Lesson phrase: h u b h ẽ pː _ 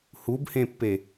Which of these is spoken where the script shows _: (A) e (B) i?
A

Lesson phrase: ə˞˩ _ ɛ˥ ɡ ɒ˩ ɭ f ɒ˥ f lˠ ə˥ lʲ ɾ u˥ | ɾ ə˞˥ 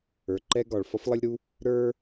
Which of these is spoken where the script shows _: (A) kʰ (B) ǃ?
B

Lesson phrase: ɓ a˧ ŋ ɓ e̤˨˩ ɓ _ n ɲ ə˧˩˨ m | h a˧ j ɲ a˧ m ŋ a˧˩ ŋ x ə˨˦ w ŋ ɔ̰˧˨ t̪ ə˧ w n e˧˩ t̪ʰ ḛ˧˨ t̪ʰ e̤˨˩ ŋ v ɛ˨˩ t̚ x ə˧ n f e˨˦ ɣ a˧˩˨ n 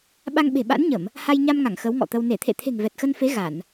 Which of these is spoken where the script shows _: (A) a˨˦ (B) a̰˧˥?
B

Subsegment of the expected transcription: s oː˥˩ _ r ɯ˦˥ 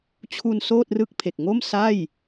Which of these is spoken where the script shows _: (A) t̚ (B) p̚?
A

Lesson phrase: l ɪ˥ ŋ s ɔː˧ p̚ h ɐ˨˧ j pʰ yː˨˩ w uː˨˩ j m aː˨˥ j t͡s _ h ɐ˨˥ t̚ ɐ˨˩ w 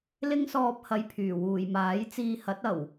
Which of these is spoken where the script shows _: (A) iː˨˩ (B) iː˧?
B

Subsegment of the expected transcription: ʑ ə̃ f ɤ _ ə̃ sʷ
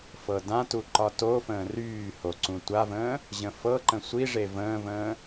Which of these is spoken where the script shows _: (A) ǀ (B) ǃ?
B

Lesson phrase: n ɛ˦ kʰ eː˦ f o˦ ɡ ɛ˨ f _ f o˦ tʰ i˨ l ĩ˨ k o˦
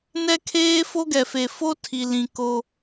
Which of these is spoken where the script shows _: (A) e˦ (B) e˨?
B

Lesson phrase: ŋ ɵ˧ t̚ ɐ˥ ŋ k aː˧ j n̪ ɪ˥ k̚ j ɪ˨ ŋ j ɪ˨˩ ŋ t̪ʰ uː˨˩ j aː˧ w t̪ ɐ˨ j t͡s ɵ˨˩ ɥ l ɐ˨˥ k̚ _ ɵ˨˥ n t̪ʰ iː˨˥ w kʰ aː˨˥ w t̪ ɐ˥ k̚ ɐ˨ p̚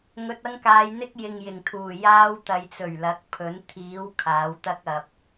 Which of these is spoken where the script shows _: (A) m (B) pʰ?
B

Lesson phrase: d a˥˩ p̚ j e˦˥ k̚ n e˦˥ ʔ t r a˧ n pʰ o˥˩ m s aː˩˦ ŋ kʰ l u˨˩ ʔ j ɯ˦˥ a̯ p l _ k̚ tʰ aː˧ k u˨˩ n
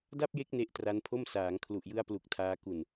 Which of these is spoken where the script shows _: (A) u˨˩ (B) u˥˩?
A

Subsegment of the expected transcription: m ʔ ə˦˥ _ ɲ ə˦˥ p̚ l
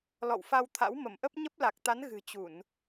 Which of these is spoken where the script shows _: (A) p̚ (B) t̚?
A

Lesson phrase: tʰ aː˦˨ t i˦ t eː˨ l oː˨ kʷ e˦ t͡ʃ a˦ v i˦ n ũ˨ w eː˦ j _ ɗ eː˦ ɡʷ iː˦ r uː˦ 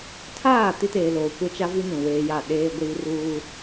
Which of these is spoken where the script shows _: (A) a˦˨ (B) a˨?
A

